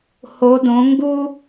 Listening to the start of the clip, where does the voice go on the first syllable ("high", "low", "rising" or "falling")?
rising